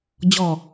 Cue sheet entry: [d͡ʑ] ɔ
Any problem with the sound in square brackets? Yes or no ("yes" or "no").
no